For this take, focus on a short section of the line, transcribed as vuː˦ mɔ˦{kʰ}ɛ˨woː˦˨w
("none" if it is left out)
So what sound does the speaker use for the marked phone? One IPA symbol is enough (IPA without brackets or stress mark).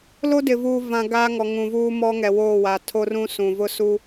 ŋ